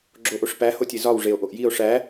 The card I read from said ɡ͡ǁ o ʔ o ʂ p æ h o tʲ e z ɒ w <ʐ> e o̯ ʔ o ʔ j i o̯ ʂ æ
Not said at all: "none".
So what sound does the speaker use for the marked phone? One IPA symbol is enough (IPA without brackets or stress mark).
ʐ